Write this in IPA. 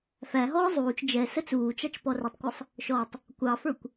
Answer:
f æ ɦ ɔː zˤ uː t͡ʃ d͡ʒ ɛ s ə t͡s uː t͡ʃ ɑ t͡ʃ p ɔ r ə tˤ kʷ ʌ sˤ | ʃ ɔ tˤ | kʷ ɑ f ə˞ kʷ

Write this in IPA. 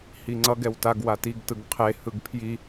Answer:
h i ŋ͡ǀ ʌ ɡ ɛ w t a ɡ w a t i ɡ t ɯ ɡ qʰ e h ɯ ɡ pʰ j i

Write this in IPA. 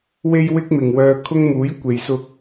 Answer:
w e˥ j w ɪ˥ k̚ m ɪ˨ ŋ w œː˧ kʰ ʊ˧ ŋ m uː˨˥ j kʷ e˨ j s ʊ˧ k̚

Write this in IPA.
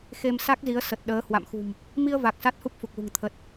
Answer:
x e˧ m s a˦˥ k̚ z i˨˦ ə̯ s ə˨˩ t̚ ɗ əː˨˦ h w a̰˧˨ m x ṳ˨˩ m | m i˧ ə̯ v a˨˩ k̚ s a˦˥ t̚ h u˦˥ p̚ f u˨˩ k̚ l ṳ˨˩ ŋ t̪ʰ ə˨˩ t̚

